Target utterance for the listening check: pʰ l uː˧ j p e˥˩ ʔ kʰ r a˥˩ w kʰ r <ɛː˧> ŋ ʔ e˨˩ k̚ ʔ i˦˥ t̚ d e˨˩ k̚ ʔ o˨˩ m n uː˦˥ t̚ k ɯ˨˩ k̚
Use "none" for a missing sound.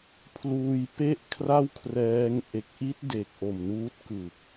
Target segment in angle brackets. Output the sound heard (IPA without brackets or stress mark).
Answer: ɛː˦˥